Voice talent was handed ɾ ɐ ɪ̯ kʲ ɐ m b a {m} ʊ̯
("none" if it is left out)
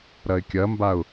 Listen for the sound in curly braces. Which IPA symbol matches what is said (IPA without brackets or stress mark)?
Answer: none